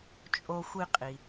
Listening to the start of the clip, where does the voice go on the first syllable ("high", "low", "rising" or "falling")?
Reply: low